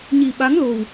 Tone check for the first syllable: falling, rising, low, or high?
low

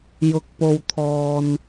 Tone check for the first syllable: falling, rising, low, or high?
low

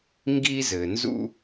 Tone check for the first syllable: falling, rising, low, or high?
high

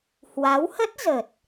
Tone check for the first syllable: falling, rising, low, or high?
rising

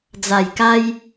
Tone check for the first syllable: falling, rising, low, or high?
low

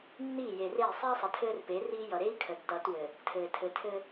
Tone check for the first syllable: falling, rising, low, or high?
falling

